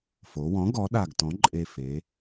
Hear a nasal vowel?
yes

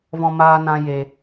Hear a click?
no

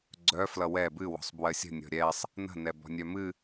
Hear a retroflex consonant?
no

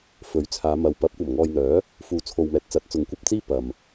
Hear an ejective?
no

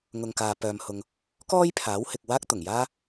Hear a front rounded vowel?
yes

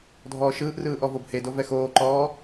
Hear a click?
yes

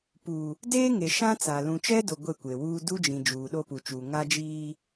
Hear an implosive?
yes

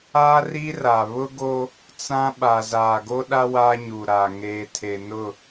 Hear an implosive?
yes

